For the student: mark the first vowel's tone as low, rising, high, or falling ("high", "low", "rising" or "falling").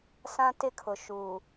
high